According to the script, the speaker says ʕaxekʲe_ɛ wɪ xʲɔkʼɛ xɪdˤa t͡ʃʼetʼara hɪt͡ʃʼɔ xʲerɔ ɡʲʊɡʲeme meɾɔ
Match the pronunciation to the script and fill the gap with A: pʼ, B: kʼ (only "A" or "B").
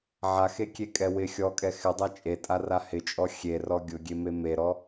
B